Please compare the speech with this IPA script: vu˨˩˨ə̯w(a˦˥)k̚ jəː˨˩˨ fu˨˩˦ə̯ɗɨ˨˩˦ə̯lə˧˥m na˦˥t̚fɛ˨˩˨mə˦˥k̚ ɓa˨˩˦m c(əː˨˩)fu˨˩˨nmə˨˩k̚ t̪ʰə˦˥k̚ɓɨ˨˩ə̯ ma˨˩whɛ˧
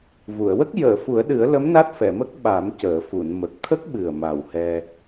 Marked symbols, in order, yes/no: no, no

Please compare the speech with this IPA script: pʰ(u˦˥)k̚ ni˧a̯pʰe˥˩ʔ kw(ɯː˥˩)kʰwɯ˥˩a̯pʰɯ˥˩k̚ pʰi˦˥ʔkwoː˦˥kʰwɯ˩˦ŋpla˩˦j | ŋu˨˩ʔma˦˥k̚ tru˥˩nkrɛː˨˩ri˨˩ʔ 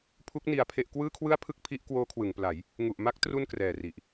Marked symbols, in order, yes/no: yes, yes

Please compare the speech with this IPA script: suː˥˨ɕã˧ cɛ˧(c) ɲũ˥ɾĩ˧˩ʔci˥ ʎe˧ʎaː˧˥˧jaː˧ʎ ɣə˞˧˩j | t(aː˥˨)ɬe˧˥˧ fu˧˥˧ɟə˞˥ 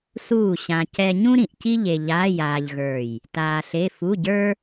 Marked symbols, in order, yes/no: no, no

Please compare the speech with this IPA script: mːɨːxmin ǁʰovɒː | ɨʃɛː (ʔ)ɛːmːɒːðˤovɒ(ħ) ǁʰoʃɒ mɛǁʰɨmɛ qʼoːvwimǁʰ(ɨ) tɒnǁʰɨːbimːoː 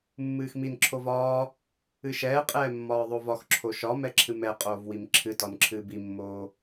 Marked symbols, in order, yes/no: no, no, yes

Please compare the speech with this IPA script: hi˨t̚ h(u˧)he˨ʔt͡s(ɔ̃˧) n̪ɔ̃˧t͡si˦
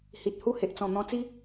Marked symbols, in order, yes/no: no, no

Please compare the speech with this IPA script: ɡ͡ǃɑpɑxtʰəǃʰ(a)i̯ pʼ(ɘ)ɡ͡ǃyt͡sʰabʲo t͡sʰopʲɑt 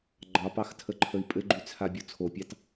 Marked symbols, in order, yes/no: no, yes

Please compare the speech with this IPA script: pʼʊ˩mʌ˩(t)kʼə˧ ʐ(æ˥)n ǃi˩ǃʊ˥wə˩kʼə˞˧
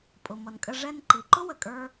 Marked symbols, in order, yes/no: no, no

